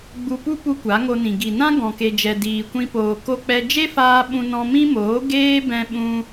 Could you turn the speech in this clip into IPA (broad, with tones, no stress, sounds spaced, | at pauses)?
ɡ͡b u˧ p u˦ p u˦ kʷ a˨˦ ŋ o˧ n ĩ˨ ɡ i˨ n ã˦ ɡ ɔ̃˧ k e˧ d͡ʒ ɛ˧ d iː˧ kʷ ĩ˦ p oː˧ k o˦ k͡p ɛ˦ d͡ʒ e˦ f aː˧ ɓ ũ˧ n ɔ̃˧ m ĩ˦ m oː˨˦ ɡ eː˦ b ɛ̃˧ ɓ ũ˧